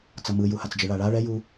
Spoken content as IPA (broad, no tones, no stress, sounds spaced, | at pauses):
t͡s ʌ m ɯ j u h a t͡s d͡ʒ ɯ ɭ a ɭ a ɭ ɛ j u